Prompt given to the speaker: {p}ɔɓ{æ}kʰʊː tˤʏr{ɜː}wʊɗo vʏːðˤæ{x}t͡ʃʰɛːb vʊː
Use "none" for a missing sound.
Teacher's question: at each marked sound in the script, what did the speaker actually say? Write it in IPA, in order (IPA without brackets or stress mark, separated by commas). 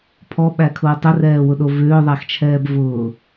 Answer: pʰ, æ, ɛː, x